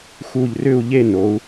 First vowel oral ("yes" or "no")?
yes